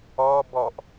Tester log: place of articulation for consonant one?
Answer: labial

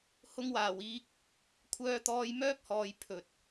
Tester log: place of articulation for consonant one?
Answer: glottal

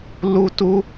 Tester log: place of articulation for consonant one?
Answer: alveolar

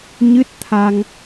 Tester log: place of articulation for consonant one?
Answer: palatal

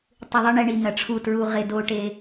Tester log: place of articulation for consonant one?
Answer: alveolar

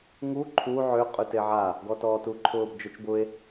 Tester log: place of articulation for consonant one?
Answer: velar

